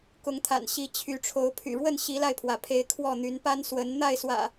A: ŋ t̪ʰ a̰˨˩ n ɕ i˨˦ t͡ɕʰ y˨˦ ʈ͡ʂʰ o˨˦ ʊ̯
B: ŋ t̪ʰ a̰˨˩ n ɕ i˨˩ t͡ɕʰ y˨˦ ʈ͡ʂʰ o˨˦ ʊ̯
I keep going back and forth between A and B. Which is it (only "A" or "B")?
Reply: A